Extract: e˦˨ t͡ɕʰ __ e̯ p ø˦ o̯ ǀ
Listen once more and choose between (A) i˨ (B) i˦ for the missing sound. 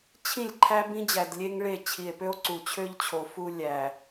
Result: A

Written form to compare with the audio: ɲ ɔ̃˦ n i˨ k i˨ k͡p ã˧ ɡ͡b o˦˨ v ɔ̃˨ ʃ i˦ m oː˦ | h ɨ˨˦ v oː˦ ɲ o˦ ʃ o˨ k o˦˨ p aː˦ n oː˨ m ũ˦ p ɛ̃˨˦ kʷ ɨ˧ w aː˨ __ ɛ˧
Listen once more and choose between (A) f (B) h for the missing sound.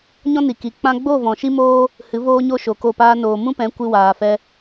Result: A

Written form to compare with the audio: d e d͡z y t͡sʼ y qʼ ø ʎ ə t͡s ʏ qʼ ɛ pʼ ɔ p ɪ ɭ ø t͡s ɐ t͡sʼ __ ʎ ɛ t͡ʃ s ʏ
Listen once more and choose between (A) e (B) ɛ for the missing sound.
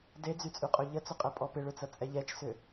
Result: B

